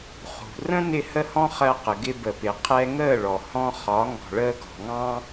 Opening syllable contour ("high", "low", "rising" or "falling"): low